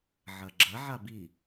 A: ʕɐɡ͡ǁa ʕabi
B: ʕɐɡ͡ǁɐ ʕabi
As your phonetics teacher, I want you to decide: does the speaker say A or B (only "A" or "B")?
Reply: B